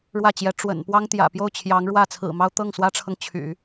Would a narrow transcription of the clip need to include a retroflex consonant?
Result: yes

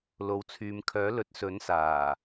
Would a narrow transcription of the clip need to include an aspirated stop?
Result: yes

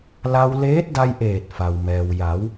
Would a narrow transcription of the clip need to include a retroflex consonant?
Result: no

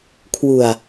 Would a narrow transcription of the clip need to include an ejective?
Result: no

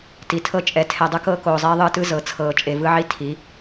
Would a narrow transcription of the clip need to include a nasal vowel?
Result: no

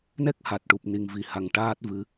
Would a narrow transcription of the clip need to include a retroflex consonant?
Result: yes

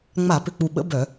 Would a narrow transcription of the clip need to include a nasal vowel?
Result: no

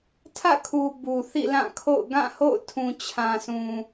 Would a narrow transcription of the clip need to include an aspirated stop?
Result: yes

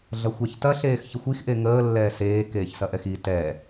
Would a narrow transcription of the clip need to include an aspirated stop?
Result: no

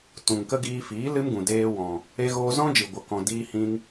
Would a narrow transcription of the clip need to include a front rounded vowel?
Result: no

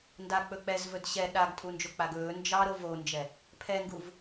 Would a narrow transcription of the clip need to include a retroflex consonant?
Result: no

